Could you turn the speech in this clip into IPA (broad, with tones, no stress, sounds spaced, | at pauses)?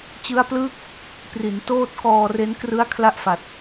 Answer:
t͡ɕ ɯ˦˥ a̯ p l ɯː˥˩ k̚ | p r i˩˦ n t oː˥˩ t̚ k ɔː˧ r e˦˥ n k r ɯ˦˥ a̯ kʰ l a˥˩ ʔ f a˨˩ t̚